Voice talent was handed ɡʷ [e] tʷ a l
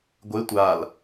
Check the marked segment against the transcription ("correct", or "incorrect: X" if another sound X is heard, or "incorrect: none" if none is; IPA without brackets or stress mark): correct